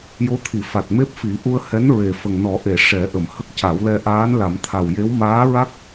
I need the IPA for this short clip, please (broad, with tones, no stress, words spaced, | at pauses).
jo˧˥t̪ʰi˨˩˨ fa˨˩t̚me˦˥p̚fi˨˩˦ ʔu˧ə̯hɛ˧˥n ɹe˨˩ fə˨˩ŋnɔ˨˩˦ʔe˨˩˨ ʂɛ˨˩˦ʔə˨˩˨m hə˦˥k̚ ca˨˩˦wlɛ˧ ʔaː˧˥nla˨˩˦mt̪ʰa˨˩wje˧˥w maː˧˥ɹa˦˥k̚